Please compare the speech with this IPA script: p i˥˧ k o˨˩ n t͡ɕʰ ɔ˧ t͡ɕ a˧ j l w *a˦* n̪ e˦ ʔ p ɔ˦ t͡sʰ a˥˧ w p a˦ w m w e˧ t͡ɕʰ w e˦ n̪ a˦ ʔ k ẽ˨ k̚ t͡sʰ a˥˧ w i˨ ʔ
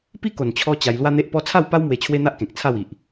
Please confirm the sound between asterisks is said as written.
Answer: yes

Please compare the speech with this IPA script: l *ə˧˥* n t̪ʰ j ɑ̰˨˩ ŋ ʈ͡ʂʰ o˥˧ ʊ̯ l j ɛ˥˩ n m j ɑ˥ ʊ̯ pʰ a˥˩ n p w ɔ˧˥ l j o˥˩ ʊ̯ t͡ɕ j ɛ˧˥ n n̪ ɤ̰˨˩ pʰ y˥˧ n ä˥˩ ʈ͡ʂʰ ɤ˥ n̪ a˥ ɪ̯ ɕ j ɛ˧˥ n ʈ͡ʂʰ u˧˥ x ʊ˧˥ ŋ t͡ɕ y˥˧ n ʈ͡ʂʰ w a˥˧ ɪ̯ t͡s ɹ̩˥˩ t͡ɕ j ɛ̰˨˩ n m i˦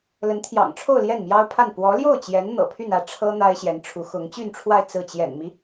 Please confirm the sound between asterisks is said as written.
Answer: yes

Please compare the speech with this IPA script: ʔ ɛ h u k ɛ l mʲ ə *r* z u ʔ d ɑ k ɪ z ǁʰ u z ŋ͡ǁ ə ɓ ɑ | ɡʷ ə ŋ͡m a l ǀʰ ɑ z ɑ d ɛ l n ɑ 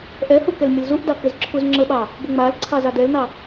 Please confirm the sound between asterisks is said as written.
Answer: no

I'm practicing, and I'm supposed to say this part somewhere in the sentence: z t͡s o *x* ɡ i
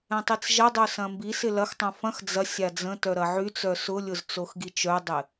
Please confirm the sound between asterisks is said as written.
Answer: yes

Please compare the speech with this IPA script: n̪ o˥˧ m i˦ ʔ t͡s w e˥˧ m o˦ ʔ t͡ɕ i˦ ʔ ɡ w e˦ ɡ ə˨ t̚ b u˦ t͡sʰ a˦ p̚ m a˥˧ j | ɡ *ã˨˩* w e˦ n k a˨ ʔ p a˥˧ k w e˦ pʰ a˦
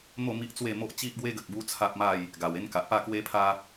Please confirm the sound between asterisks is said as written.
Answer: no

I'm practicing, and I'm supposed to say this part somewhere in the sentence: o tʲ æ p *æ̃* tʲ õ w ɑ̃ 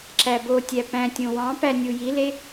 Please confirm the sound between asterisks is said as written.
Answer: yes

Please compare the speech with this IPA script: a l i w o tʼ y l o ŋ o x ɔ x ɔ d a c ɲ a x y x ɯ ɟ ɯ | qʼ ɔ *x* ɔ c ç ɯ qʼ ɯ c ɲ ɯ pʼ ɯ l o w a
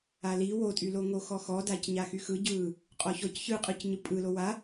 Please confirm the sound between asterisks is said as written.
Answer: no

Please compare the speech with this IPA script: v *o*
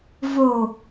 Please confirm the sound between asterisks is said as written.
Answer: yes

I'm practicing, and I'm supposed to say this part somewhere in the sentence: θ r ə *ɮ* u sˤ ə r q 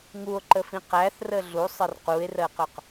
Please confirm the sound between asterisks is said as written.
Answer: yes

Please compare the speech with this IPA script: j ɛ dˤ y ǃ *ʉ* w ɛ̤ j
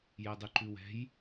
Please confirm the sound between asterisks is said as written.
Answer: yes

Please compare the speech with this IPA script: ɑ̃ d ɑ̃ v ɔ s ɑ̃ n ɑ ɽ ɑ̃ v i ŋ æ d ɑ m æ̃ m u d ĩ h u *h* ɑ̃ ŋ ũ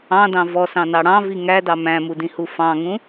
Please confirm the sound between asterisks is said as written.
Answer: no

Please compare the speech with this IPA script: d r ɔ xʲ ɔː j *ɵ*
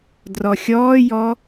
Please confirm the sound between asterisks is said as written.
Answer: no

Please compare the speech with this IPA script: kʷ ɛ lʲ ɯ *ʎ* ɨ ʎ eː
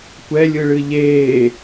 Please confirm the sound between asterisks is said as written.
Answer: no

